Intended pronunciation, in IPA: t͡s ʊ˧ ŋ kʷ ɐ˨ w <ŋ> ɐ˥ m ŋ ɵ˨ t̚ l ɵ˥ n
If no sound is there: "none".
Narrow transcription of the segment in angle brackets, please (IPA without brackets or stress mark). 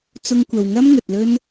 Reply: ŋ